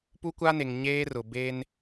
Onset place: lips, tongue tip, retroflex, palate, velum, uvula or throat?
lips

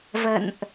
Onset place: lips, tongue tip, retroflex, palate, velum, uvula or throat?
lips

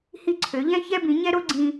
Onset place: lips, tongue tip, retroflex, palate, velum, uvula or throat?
throat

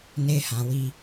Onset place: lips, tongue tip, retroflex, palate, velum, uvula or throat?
tongue tip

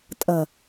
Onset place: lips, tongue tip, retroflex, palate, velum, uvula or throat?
tongue tip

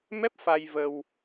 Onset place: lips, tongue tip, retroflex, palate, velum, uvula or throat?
lips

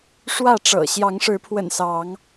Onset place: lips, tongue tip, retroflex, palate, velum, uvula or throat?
retroflex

